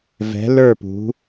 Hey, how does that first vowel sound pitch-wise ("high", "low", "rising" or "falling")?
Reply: rising